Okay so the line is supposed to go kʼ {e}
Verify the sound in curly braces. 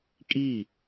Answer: incorrect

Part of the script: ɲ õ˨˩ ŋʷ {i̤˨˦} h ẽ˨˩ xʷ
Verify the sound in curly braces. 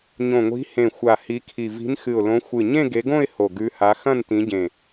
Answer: correct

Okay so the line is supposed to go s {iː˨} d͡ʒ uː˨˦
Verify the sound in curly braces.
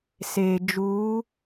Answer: incorrect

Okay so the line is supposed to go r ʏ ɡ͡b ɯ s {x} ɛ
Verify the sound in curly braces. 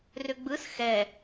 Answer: correct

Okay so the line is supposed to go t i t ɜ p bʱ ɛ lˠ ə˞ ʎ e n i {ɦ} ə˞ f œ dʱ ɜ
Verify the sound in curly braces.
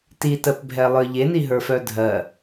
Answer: correct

